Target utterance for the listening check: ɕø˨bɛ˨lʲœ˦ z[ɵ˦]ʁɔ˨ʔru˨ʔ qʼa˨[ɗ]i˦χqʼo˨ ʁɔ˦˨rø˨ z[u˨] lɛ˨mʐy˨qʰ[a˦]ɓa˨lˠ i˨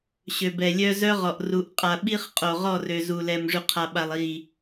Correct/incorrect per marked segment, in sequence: incorrect, incorrect, correct, incorrect

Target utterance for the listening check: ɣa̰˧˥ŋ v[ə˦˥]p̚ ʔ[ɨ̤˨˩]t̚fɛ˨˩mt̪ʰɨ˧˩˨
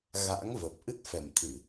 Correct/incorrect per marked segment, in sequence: incorrect, incorrect

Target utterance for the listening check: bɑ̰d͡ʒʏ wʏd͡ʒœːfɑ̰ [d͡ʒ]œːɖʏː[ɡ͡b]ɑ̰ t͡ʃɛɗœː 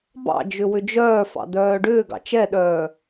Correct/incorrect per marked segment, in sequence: incorrect, incorrect

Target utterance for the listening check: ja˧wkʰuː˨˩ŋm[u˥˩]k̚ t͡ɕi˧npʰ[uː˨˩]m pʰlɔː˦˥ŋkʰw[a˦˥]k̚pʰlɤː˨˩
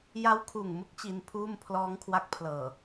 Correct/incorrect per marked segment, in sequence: incorrect, incorrect, correct

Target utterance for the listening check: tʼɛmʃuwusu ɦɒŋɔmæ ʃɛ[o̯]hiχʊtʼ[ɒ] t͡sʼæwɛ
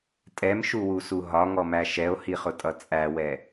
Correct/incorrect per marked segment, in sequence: correct, incorrect

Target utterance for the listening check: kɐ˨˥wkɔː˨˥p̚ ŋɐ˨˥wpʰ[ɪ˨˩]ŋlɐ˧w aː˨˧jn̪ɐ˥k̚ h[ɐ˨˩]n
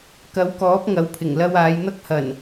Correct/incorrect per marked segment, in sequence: correct, correct

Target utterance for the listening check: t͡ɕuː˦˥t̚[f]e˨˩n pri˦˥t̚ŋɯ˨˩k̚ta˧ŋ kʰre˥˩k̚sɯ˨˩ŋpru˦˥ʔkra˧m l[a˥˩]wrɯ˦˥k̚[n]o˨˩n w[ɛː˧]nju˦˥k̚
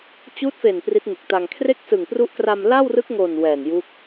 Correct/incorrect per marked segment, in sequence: correct, correct, incorrect, incorrect

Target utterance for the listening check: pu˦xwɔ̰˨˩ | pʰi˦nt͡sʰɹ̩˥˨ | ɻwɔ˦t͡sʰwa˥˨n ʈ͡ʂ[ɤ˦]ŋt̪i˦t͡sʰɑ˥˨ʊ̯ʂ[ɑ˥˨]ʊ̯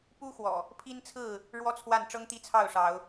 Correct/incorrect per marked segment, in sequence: correct, incorrect

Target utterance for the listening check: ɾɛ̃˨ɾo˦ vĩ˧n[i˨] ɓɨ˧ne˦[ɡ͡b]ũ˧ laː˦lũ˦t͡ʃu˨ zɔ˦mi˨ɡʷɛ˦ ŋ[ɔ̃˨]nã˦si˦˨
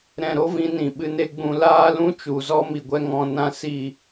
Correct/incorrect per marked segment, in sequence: incorrect, correct, incorrect

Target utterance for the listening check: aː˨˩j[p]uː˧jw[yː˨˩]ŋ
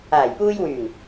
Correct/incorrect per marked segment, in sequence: correct, correct

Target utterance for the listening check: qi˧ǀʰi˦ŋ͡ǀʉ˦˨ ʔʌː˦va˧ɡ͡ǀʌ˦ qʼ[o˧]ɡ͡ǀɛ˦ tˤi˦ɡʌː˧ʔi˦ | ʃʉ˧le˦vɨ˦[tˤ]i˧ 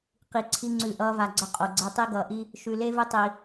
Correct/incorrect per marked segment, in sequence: correct, correct

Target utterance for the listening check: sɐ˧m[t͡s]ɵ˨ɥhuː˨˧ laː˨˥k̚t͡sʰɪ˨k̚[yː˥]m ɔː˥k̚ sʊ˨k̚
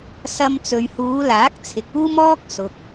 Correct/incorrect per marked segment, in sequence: correct, incorrect

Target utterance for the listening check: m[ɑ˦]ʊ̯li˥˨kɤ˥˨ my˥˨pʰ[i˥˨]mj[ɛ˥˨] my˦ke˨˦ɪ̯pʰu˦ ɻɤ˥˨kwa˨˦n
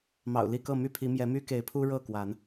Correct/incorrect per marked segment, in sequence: incorrect, incorrect, incorrect

